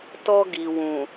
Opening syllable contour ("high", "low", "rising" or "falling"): high